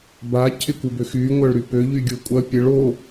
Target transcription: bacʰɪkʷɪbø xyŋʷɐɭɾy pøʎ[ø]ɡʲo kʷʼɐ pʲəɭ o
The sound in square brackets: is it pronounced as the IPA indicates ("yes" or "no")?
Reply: no